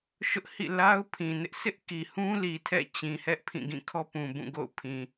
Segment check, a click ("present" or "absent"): absent